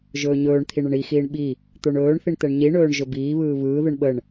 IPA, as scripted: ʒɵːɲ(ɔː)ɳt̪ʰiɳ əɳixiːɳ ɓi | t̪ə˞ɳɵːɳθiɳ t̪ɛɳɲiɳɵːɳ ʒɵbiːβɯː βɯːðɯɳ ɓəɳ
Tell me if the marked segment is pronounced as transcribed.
no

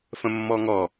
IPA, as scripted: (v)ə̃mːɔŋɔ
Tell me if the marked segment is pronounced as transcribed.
no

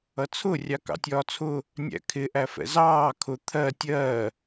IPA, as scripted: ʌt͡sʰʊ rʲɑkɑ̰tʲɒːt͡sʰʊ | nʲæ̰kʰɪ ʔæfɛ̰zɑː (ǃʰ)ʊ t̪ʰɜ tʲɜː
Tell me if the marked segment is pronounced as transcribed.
no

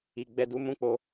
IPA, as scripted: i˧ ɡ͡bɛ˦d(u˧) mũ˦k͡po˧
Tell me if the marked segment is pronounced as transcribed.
no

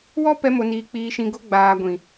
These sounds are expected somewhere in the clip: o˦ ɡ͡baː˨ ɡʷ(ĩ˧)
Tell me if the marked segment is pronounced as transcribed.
no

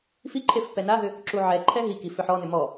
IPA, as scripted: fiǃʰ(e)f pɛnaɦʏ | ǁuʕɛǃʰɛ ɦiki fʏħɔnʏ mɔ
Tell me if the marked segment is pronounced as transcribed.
yes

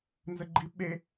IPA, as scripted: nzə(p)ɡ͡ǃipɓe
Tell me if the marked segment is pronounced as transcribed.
no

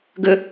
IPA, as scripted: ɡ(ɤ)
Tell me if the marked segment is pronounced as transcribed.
no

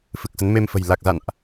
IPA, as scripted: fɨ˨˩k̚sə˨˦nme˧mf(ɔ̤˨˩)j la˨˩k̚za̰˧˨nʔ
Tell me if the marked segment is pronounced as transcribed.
no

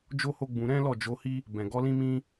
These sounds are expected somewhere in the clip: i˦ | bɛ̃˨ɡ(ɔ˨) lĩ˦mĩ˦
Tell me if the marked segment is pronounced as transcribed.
no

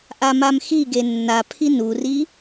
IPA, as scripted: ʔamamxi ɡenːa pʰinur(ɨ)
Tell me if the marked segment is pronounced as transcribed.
no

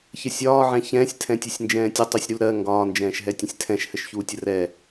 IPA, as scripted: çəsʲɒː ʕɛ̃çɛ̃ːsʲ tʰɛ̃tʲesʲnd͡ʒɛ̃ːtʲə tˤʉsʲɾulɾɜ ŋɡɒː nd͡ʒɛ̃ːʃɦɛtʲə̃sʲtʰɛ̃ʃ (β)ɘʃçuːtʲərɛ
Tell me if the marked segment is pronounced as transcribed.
no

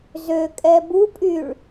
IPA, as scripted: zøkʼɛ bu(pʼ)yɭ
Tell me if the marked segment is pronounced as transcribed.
yes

